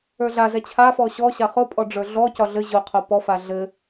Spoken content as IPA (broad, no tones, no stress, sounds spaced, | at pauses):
ə˞ ɮ a z ɛ t͡ɕʰ a f ɔ ɕ ɔ ɕ a χ ʊ pʼ ɔ ɖ͡ʐ ə˞ ɮ ɔ c ɒ ɮ ɘ ʑ ʊ qʰ o p ɔ f a ɮ ɘ